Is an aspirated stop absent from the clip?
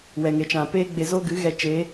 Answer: yes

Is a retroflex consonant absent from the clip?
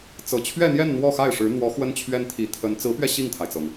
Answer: no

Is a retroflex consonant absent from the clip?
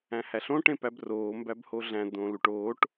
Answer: no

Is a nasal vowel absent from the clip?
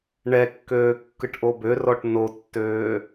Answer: yes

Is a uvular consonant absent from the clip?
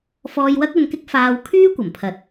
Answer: yes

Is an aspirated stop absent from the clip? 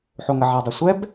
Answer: yes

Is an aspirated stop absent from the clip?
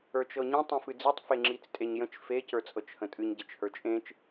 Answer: yes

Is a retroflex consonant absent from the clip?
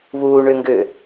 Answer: no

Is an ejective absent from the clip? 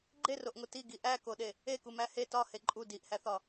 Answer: no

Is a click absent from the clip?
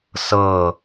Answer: yes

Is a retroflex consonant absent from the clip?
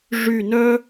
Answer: no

